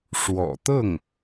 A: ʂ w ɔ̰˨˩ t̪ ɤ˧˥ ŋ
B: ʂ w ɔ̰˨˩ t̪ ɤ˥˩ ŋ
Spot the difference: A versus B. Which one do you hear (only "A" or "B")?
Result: B